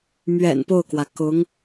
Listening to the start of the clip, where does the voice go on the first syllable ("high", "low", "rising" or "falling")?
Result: low